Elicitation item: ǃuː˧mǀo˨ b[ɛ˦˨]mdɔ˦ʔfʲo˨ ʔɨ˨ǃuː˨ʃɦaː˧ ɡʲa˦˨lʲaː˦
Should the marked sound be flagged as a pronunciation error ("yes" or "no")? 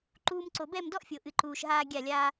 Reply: no